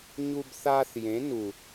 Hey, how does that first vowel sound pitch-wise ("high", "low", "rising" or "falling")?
high